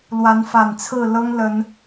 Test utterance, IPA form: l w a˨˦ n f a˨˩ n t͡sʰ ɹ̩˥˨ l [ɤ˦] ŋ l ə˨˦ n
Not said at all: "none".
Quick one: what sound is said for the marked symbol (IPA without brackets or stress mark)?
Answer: ɤ˦